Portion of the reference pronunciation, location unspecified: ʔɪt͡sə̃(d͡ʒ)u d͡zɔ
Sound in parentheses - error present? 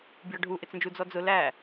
no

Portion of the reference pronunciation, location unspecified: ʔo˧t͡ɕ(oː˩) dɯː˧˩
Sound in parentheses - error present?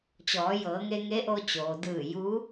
no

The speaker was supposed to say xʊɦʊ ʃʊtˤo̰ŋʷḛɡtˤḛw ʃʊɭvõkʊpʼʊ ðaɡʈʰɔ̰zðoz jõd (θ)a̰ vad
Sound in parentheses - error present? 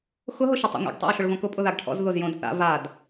no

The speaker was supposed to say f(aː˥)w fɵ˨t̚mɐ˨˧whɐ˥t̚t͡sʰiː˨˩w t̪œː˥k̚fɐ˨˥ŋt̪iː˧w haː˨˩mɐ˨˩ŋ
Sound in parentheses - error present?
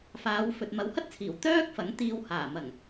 yes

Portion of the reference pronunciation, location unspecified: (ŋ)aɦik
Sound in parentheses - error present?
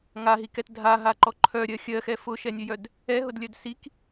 no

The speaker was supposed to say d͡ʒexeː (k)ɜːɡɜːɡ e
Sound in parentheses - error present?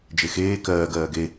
no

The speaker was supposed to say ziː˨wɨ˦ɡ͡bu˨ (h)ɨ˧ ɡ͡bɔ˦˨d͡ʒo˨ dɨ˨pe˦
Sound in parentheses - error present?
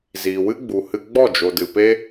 no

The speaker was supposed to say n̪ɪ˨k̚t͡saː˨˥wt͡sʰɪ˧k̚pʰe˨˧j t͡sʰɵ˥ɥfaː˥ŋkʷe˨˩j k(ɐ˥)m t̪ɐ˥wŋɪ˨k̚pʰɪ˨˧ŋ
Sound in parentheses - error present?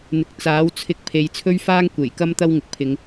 no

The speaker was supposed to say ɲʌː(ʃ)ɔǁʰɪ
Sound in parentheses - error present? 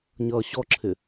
yes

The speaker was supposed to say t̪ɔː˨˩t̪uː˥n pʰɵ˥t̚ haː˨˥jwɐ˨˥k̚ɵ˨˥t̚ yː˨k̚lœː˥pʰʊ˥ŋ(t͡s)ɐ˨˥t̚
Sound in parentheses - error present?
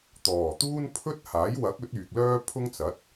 no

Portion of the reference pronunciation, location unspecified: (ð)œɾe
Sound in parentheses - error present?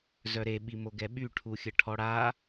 yes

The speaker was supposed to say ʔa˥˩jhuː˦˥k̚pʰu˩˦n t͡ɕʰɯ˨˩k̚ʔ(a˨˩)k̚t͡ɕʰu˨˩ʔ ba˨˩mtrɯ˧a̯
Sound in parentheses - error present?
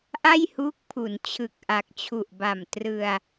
no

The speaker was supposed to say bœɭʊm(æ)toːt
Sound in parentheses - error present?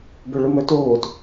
yes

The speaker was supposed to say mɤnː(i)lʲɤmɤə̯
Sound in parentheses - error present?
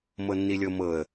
no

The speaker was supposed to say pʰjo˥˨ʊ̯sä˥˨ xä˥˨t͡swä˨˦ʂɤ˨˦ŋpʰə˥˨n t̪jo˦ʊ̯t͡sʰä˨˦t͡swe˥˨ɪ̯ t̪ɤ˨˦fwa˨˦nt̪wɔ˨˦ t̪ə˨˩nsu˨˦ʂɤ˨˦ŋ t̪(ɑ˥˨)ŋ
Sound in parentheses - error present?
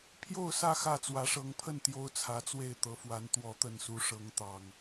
yes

